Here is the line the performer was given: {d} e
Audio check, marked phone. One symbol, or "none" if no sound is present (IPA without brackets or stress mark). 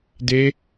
d